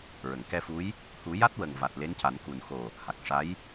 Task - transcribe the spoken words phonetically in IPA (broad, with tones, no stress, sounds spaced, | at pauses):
ɹ ə˨˩˨ ŋ k ɛ˧ f u˧˥ j | h u˨˩˦ j a˦˥ t̚ w ə˨˩ ŋ v a˨˩ t̚ l e˧˥ n c a˨˩˦ n k u˨˩ n x o˨˩ | h a˨˩ k̚ ʂ a˧˥ j